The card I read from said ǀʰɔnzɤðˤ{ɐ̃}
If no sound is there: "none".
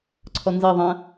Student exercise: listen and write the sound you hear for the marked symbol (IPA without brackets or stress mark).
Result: ɐ̃